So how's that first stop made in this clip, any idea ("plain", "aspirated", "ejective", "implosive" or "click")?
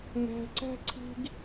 click